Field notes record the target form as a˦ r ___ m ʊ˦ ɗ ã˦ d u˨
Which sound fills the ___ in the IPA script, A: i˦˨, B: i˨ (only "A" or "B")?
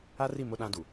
A